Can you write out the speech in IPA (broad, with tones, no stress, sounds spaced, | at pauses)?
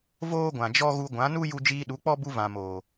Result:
v oː˦ ɡʷ ã˨ d͡ʒ ɔ˦ ɣ u˧ ɡʷ ã˨˦ n u˦ j u˧ d͡ʒ iː˧ ɗ u˨˦ k͡p ɔ˦ b u˧ v ã˨ m oː˨